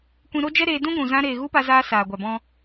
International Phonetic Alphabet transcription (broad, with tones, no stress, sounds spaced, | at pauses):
kʷ ĩ˧ ɾ o˦ d͡ʒ ɛ˦ ɾ eː˧ d ũ˦ ɡʷ ũ˨ z ã˧ ɾ eː˨ ɣ u˦ p a˧ z aː˧ s aː˨ ɡʷ a˨ b ɔ̃˧